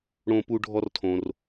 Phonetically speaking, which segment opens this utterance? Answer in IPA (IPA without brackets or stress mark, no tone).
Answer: ɽ